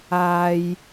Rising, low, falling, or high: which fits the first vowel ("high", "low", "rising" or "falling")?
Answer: low